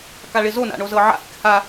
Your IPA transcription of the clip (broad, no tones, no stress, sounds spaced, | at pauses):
k a ɭ ɪ z o n a̰ ɳ o z ɤ ʕ a̰ h ɪ k h a